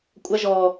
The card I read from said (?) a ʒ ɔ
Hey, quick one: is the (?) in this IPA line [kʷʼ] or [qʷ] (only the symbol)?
kʷʼ